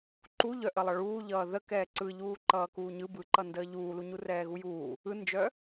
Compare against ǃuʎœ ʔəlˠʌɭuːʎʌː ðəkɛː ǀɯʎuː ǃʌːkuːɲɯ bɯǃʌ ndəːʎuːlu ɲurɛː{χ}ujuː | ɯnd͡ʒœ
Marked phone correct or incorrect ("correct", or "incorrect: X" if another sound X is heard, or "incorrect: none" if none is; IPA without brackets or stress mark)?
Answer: incorrect: ɣ